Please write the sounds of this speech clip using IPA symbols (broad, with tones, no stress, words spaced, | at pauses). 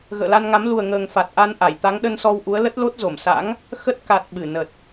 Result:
ɣə̰ː˧˨la˧nŋa˨˦m lu˨˩ə̯ ŋəː˨˩ŋ fa˨˩t̚ʔa˧n ʔa˧˩jt̪a˨˦ŋɗə˧nsɔ˧w ʔu˨˦ə̯lə˦˥t̚lo˦˥t̚zo˧˩m sa̰˧˥ŋ | xə˦˥t̚ ka˨˩t̚ ɓɨ˧˩nə˨˩t̚